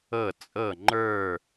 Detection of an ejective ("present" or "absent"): present